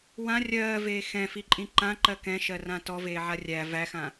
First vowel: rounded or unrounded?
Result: unrounded